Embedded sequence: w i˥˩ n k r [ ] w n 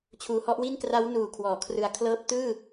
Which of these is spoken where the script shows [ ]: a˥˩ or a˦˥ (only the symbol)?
a˦˥